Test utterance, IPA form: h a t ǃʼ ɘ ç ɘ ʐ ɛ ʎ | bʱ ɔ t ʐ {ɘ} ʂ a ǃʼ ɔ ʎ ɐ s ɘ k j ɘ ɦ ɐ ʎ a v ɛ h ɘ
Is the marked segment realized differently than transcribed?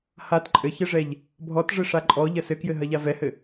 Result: no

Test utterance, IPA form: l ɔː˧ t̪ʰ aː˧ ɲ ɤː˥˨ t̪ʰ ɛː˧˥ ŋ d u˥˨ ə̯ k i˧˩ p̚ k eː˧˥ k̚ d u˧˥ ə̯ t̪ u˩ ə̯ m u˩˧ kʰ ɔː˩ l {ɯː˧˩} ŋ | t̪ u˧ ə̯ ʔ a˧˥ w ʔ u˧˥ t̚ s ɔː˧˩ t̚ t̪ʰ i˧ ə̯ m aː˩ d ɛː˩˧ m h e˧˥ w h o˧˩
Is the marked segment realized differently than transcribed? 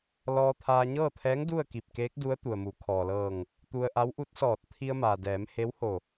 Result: yes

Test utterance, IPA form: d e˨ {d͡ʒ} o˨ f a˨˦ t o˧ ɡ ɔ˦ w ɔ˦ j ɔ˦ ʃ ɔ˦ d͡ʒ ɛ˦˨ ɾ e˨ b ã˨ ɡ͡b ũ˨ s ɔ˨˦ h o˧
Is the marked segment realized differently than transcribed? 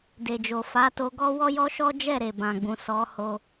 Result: no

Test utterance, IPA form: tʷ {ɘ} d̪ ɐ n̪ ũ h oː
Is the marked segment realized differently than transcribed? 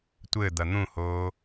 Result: no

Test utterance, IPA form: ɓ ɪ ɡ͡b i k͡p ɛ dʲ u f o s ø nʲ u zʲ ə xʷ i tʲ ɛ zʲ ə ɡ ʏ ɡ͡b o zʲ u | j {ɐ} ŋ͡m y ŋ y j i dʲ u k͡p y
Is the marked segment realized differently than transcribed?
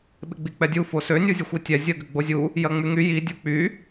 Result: no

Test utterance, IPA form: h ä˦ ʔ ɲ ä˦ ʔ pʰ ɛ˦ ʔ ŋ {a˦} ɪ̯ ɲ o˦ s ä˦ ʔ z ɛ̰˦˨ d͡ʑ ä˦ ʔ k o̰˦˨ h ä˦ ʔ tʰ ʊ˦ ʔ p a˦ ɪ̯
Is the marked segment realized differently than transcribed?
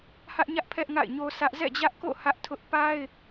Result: yes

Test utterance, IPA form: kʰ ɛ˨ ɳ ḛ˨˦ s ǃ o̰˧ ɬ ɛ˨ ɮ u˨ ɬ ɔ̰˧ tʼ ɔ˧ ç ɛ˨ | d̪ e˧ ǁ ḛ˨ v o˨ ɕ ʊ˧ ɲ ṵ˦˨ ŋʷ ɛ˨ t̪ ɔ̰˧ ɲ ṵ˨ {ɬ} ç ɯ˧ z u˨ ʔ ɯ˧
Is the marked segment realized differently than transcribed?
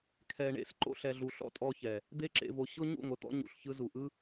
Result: no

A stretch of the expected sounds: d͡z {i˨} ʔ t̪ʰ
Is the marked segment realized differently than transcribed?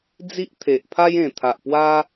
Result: yes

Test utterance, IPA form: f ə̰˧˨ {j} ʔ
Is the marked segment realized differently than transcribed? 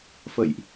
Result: no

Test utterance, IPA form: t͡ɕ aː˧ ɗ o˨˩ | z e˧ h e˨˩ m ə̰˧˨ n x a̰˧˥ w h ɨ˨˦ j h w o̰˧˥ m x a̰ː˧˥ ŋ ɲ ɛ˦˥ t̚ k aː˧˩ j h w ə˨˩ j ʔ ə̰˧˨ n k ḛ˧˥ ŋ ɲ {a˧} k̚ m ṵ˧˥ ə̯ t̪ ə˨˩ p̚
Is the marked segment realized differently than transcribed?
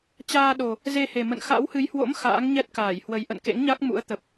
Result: yes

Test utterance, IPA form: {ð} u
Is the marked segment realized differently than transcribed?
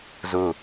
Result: yes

